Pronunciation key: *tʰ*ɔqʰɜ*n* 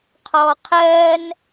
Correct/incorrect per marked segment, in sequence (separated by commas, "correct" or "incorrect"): incorrect, correct